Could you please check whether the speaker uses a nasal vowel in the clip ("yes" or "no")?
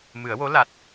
no